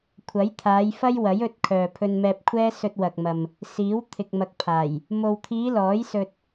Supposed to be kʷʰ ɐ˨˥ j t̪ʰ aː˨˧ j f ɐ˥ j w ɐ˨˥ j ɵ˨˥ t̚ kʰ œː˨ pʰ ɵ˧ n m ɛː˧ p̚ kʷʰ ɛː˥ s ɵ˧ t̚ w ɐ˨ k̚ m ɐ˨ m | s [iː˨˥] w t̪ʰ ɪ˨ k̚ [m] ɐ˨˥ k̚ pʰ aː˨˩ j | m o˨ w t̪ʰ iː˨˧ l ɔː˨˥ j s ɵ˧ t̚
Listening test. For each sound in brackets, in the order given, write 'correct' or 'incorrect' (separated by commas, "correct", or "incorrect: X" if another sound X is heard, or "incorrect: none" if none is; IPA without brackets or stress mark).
correct, correct